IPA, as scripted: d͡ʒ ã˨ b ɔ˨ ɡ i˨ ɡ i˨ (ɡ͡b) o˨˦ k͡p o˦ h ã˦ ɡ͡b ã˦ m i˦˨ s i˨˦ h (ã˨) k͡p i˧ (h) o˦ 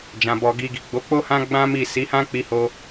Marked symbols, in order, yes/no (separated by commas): yes, no, yes